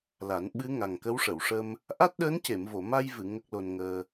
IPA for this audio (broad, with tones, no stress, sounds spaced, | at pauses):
l a˨˩˦ n ɓ ɨ˧˥ ŋ a˨˩ ŋ k ə˧˥ w ʂ ə˨˩˨ w ʂ ə˧ m | ʔ a˦˥ t̚ ɗ əː˧˥ n c e˨˩˨ m v o˨˩˨ m a˧ j v ɨ˨˩˨ ŋ ə˦˥ k̚ l o˧ n ŋ əː˧